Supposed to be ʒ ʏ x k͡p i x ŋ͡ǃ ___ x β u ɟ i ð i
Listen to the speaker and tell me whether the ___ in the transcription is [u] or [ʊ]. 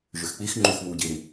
u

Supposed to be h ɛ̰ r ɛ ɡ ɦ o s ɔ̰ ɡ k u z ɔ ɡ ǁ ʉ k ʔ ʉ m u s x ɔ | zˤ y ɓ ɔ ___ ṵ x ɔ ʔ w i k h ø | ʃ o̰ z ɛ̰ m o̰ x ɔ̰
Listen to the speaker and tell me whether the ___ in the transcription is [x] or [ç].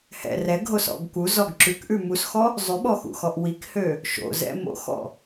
x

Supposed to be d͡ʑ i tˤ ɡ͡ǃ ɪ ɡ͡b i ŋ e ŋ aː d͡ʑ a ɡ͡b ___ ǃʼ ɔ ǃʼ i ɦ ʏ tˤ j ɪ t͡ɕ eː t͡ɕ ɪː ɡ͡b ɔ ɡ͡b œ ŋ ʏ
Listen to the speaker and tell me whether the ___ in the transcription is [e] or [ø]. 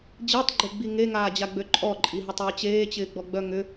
ø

